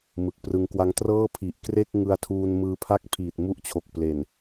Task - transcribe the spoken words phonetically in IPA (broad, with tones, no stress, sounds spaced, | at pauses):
m ɯ˨˩ k̚ p r ɯ˧ ŋ k w a˦˥ ŋ t r ɤː˥˩ pʰ i˨˩ ʔ k r e˥˩ k̚ ŋ ɯ˧ a̯ tʰ uː˧ n m ɯː˧ pʰ a˦˥ k̚ pʰ iː˨˩ t̚ m u˦˥ ʔ t͡ɕʰ o˨˩ k̚ p l e˨˩ n